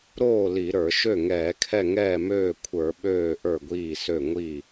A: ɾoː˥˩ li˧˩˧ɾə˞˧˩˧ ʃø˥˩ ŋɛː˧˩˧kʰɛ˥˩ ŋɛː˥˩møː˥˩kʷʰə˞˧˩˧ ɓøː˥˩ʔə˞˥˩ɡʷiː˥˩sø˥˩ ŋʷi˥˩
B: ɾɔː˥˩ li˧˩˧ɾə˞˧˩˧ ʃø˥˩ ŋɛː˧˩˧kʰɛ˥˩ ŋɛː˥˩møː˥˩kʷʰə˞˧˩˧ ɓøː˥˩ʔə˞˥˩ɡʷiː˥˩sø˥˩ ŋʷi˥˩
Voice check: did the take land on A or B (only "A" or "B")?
A